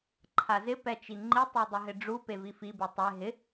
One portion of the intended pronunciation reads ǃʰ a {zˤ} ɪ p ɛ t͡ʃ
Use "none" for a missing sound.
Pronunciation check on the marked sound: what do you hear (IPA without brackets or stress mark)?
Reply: z